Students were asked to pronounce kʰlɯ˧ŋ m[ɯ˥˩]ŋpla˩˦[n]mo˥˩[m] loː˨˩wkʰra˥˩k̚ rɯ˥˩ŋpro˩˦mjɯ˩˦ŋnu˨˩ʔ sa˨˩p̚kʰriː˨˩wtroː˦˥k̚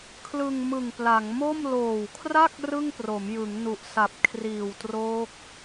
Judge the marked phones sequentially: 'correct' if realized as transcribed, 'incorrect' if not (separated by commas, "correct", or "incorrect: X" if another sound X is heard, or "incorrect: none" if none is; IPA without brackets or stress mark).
incorrect: ɯ˨˩, incorrect: ŋ, correct